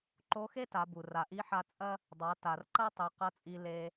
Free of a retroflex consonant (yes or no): yes